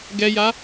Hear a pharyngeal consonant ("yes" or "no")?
no